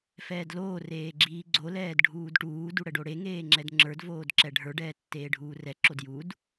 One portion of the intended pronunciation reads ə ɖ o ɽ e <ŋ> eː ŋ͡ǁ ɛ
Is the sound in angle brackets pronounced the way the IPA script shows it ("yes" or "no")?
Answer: yes